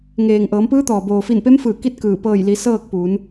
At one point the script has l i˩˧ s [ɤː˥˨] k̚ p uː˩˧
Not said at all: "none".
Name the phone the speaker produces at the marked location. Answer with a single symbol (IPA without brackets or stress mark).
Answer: ɤː˥˨